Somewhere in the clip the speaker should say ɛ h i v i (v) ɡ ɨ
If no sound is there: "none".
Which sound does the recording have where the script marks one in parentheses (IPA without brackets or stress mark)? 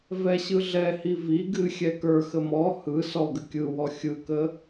none